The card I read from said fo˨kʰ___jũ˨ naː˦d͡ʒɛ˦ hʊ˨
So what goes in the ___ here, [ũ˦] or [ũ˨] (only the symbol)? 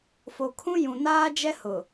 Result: ũ˦